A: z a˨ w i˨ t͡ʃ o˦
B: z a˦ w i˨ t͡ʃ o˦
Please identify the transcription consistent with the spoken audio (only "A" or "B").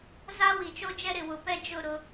B